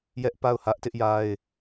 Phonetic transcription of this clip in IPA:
j ɛ˦ ʔ p a˦˨ ʊ̯ h ä˦ ʔ t ɪ˦ ʔ j a˦ ɪ̯

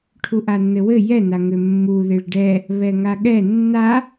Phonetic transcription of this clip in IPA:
ʈʰ u ʔ a nː ɘ w ɘ j ɛ n a ŋ ʏ mː u ð e ɭ ɖ ɛ | β ɛ ŋ a ɠ ɛ nː a

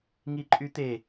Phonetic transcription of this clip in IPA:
ŋ i ǃʼ y t̪ e

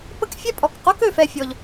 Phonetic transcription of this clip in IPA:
p ə˥ k fʲ ɛ˥ pʼ ɔ˩ k q o˥ k ø˩ f ɛ˧ fʲ ɔ˩ ʎ

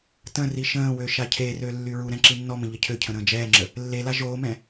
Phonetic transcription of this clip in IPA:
t ə̃ r i ʃ ə̃ː w ø ʃ a cʰ e r ø lː y ɹ u ɾ ɛ̃ ǁ i nː ɔ m ə̃ ʎ ə cʰ ø cʰ ə̃ ɾ ə̃ː d͡ʒ ɛː ŋ͡ǁ ə | lː e l a ʒ oː m ɛ̃

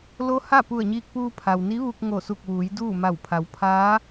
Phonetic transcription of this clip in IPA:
l o˧˥ h a˥˨ p u˧˩ ə̯ ɲ iː˧ k̚ p uː˧ pʰ a˩ w n i˧˥ ʋ u˧ k̚ ŋ o˧˩ s u˧˩ k̚ ʋ uː˩˧ j d uː˥˨ m a˧˩ w pʰ a˩˧ w pʰ aː˧˥

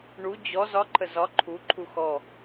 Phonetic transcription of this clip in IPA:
ɳ u d͡ʑ ɔ z ɒ ǃʰ ə z ɒ ǃʰ u ǃʰ u x ɔ

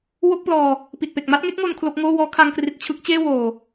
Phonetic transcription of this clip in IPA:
w o˥˩ k̚ p l ɔː˧ | p i˨˩ t̚ p e˨˩ k̚ m a˥˩ t̚ ŋ e˥˩ k̚ ŋ o˧ n kʰ l o˦˥ k̚ ŋ oː˥˩ w ɔː˦˥ kʰ a˧ ŋ k r i˨˩ t̚ t͡ɕʰ ɯ˦˥ k̚ t͡ɕ eː˥˩ w oː˨˩

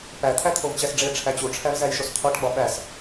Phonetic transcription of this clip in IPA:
p æ t̪ʰ æ t̪ʰ o v t͡ɕ æ s ɖ͡ʐ e ʈ͡ʂʰ æ t͡ɕ u ʈ͡ʂʰ æ v z æ j ʃ o s t̪ʰ ɒ ʈ ɡ͡b ɒ ɓ æ s

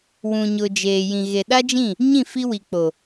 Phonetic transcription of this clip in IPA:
w ũ˨ ɲ ʊ˨ d͡ʒ eː˨ j ĩ˨ ɣ e˨ ɗ a˦ d͡ʒ ĩ˦˨ | ɲ ĩ˦˨ f i˦ w i˨ k͡p o˨

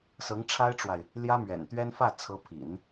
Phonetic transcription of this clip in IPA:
s ɤ˧˥ ŋ ʈ͡ʂʰ a˥ ɪ̯ ʈ͡ʂ w a˨ ɪ̯ | l j ä˥ m ɥ ɛ̰˨˩ n t̪ ɥ ɛ˥ n f ä˥˩ t͡sʰ ɤ˧˥ pʰ ḭ˨˩˦ n

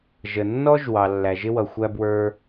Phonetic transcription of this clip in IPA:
ʒ ə˩ nː ɔ˥ ʒ w ɑ˩ lː æ˩ ʒ ɪ˥ w ʌ˩ xʷ æ˥ b w ə˞˥

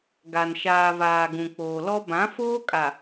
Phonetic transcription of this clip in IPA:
ɡ a˨ n ʃ aː˨ v aː˨ ɡ ũ˨ k͡p oː˨ l ɔ˦ b ã˨˦ f oː˦ kʼ a˨

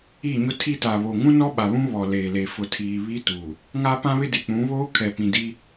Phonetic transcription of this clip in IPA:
i˦˨ ɲ ʊ˦ tʰ i˦ t a˨ β o˨ ŋ ũ˦ n ɔ˦ ɓ a˨ β ũ˦ β ɔ˨ l eː˨ l e˨ f ʊ˨ tʰ iː˨ β i˦ t u˨ | ŋ a˦ p ã˦ β ɪ˦ d e˨ k͡p ũ˨˦ β oː˦ kʰ ɛ˨ p ĩ˨ d i˦

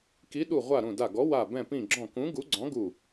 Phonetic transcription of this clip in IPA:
k i˨˥ ɗ u˧˩ ʁʷ a˧˩ ɾ ũ˧˩ d a˧˩ ɡ ɔ˨˥ w a˧˩ b ɛ̃˧˩ p ĩ˧˩ ɡ͡ǁ ɔ̃˧˩ k ũ˨˥ ɡ u˨˥ ɡ͡ǀ ɔ̃˨˥ ɡ u˧˩

